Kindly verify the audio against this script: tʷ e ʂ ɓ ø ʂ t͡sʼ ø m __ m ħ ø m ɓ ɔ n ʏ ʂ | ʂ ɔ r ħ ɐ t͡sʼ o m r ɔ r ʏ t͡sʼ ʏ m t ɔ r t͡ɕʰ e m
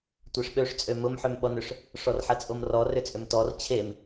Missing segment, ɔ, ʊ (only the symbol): ʊ